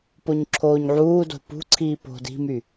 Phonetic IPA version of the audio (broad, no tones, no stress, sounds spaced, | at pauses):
p o ɲ ǁʰ oː ɲ ʕ uː d o̤ p ṳ ǀʰ iː p o̤ d i̤ m y